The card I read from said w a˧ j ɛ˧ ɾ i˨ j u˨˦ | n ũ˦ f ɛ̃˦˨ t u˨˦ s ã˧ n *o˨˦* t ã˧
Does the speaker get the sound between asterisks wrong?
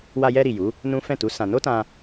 yes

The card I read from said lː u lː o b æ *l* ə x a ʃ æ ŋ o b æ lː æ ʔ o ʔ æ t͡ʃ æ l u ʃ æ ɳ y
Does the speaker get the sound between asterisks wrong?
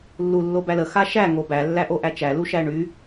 no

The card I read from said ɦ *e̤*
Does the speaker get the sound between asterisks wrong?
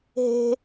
no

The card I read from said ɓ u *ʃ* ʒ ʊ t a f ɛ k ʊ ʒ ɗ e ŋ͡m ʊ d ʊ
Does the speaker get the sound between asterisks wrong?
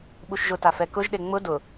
no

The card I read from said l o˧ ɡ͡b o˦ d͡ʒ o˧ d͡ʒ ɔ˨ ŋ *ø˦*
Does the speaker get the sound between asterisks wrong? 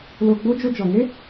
yes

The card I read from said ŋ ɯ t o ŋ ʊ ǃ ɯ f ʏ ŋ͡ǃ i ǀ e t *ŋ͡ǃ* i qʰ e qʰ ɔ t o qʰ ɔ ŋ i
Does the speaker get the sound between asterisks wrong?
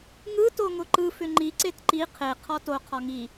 yes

